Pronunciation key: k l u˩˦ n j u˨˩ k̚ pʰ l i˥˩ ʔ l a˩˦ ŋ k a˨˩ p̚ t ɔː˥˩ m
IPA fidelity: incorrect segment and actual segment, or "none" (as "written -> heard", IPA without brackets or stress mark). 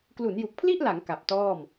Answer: none